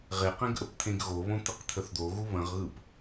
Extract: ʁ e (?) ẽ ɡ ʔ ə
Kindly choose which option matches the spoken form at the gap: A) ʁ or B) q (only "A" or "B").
B